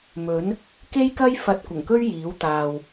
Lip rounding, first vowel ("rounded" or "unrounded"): rounded